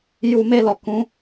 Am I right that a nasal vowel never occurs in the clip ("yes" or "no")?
no